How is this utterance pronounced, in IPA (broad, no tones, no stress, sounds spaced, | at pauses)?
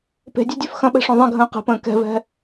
p e̤ dʲ ø dʲ ø f x ɐ̃ ɓ ɛ̤ ʂ õ ðˤ ɛ̃ ɡʱ ə̃ː q e̤ p ə̃ː k ɛ̤ v ɛ̤